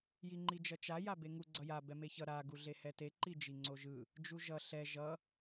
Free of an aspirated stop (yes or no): yes